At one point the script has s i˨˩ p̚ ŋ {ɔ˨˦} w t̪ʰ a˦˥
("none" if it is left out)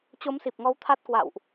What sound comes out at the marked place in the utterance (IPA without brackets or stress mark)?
ɔ˨˦